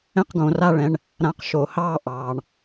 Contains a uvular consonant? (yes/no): yes